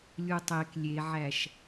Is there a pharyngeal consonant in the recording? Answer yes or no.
yes